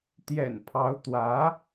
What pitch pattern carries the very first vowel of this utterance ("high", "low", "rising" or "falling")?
low